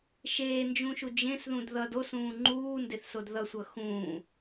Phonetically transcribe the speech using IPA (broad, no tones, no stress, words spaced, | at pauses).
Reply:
ʃeːnd͡ʒũʃu d͡ʒẽsðũd ðʌd osũː ŋ͡ǃuːndeθsod ðʌsʷʌ xũː